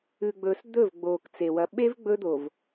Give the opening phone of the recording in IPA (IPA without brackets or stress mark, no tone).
ʉ